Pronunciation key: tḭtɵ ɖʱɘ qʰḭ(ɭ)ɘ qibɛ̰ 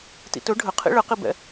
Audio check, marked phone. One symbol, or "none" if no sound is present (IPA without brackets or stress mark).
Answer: ɭ